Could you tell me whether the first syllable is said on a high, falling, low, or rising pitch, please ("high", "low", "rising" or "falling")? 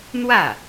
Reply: falling